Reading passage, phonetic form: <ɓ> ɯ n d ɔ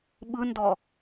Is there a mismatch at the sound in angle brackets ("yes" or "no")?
no